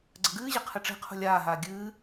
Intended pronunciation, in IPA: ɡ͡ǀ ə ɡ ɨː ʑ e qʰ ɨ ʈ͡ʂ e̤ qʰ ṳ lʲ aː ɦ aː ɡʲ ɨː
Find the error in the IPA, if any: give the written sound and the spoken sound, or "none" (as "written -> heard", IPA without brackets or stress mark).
none